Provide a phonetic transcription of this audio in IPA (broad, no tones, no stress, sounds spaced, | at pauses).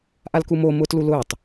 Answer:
ʔ a l k u m o m ʊː t l u l ʊː tˤ